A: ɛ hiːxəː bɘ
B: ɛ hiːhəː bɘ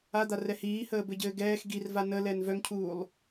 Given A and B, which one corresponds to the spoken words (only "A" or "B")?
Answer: B